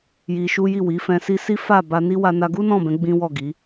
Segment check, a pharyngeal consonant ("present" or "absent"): absent